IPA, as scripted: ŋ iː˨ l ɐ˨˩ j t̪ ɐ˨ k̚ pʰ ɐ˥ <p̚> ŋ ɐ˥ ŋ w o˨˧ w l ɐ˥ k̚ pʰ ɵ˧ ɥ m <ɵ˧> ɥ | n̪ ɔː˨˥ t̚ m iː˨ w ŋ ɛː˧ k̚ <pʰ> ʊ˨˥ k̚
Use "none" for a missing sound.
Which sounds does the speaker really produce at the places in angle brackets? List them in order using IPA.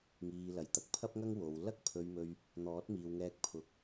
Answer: p̚, ɵ˧, pʰ

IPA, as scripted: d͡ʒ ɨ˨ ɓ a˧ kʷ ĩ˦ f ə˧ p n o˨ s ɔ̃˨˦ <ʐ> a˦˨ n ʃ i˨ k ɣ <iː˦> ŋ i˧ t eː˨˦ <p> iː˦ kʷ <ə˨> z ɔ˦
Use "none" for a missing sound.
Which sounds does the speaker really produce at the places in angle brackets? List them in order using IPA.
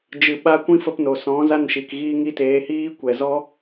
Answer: z, iː˧, h, ɛ˨

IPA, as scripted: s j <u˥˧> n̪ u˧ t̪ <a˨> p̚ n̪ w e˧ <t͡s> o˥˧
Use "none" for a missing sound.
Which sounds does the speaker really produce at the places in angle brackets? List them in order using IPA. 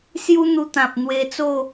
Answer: u˦, ã˨, t͡s

